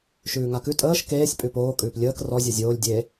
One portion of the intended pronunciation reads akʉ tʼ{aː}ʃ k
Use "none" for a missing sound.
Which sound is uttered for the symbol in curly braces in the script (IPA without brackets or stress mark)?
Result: əː